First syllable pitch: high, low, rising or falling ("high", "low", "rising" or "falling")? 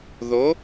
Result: rising